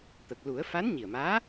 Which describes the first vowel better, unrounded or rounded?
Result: unrounded